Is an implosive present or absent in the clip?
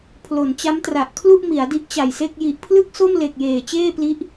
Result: absent